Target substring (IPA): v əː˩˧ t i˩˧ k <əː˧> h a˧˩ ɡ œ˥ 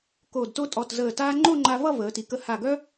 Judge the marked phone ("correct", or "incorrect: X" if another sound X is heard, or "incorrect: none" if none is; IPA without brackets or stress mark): incorrect: ə˧